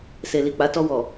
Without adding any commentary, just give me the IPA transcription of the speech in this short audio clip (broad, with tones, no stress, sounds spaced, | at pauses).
s e˨ l i˨ k͡p a˨˦ t ɔ˧ w ɔ˨